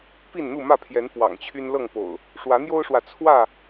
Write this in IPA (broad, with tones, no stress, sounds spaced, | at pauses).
p i˥˨ n n̪ u˥˨ m ä˥˨ pʰ j ɛ˨˦ n p w ɑ̰˨˩ ŋ t͡ɕʰ y˦ n l ɤ˥˨ ŋ p o̰˨˩ ʊ̯ | ʂ w ä˨˦ n̪ j o˦ ʊ̯ ʂ w ä˨ t͡sʰ w ä˥˨